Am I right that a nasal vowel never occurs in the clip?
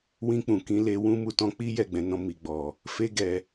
no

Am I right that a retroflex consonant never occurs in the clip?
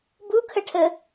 no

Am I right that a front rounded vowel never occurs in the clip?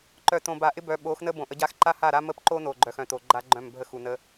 no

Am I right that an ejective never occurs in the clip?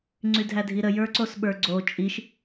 no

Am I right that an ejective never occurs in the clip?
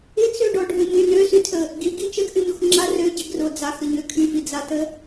yes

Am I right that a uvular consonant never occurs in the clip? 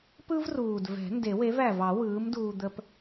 yes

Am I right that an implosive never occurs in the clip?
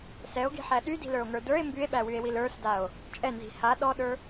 no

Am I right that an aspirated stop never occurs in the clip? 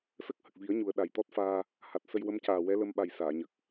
yes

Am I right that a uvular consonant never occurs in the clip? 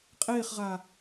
no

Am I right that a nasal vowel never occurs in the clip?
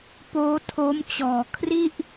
yes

